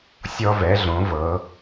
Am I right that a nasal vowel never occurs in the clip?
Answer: no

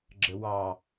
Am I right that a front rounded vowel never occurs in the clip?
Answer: yes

